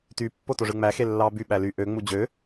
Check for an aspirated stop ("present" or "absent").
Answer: absent